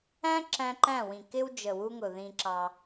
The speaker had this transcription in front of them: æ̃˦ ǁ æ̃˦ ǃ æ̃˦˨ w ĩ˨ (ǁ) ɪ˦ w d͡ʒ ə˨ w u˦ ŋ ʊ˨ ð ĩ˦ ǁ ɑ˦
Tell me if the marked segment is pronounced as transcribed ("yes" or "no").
no